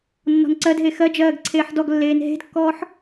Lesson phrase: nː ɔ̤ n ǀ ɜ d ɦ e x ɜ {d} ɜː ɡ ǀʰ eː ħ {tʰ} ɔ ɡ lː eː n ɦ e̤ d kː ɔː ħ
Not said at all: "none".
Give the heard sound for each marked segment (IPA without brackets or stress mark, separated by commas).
d͡ʒ, d